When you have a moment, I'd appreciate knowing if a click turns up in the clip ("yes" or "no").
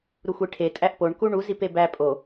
no